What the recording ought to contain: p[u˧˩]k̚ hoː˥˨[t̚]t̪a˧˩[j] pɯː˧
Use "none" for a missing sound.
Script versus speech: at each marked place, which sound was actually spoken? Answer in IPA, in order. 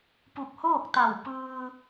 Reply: u˧˩, k̚, w

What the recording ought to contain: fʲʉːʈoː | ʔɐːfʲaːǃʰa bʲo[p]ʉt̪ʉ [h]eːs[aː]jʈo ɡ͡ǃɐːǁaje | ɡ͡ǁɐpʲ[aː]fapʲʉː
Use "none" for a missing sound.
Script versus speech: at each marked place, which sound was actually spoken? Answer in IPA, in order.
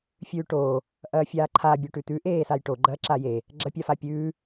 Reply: ʈ, ʔ, a, a

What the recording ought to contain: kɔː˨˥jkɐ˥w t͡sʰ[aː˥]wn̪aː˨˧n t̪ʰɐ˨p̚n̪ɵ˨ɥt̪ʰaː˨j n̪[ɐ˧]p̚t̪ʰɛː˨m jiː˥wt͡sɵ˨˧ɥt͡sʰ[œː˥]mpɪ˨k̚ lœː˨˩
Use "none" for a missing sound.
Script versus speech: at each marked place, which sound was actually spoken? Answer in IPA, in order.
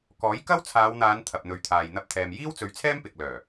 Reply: aː˨˧, ɐ˧, ɛː˥

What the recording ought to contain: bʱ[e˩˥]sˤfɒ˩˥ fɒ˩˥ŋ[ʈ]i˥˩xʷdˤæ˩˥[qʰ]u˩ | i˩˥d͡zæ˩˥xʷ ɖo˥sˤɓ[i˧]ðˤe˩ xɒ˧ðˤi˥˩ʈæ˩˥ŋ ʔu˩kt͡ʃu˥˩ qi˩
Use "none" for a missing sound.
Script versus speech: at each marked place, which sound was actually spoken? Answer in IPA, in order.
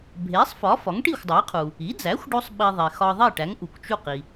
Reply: e˩˥, ʈ, qʰ, i˧

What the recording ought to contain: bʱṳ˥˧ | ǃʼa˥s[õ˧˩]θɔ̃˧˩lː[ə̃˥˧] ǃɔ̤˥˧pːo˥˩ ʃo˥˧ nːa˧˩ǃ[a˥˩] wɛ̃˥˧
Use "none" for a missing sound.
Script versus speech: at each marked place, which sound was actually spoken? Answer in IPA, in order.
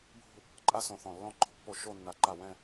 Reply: õ˧˩, ɔ̃˥˧, a˥˩

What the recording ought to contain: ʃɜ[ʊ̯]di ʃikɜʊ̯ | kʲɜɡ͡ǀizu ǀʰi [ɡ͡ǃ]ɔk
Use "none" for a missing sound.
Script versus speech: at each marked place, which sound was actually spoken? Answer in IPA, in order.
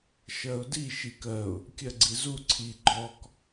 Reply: ʊ̯, ɡ͡ǃ

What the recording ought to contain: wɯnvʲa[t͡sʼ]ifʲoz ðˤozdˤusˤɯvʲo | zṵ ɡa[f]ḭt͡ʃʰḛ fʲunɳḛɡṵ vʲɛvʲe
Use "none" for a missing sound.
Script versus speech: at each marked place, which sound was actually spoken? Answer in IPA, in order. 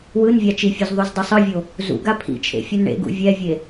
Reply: t͡ʃ, pʰ

